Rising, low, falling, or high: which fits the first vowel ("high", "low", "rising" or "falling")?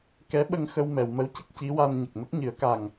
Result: rising